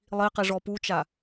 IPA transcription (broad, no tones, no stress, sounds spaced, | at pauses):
lˠ i q i ʐ ɔ p u t͡ʃ a